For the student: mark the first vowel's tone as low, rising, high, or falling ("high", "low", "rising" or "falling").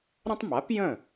high